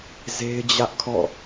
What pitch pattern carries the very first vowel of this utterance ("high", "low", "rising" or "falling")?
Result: high